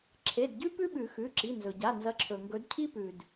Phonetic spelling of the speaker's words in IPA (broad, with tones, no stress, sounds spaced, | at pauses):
ǁʰ e˩˧˩ d ɟ ʉ˥ p ʉ˥ ɓ ʉ˨˩˦ x ʉ˩˧˩ ǁ i˩˧˩ n z ɵ˩ ɟ a˩˧˩ n z ɐ˨˦ ǁʰ ɵ˩ ŋ ɡ ɵ˨˦ d cʰ i˥ p ʉ˩ d